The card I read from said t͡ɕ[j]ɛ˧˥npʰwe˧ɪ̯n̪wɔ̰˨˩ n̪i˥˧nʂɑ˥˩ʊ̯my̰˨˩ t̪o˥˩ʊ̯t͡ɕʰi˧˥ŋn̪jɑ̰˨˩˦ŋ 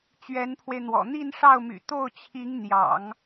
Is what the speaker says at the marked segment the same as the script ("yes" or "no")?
no